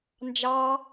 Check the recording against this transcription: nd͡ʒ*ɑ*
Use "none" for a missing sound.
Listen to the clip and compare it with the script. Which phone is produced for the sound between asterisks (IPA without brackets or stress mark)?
ɑ